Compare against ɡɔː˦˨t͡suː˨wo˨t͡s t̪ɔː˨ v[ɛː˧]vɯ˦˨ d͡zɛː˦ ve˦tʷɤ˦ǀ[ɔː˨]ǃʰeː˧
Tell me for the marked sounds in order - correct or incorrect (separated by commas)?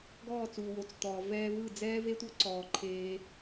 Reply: correct, correct